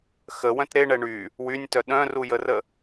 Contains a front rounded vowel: yes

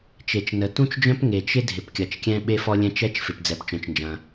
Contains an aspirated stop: no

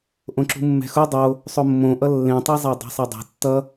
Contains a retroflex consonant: no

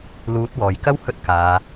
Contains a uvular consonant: no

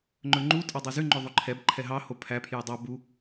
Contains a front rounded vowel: yes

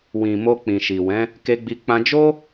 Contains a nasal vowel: yes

